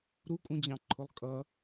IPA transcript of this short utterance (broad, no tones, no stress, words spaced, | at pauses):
ɾukʼũd͡ʑɑ̃ǃʰʊlˠ kʼʌ